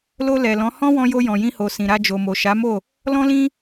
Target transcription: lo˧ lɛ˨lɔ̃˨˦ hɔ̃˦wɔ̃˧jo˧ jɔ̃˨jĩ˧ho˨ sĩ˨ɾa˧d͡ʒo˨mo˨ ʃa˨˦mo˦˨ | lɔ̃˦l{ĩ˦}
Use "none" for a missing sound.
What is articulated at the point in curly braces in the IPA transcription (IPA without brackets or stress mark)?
ĩ˦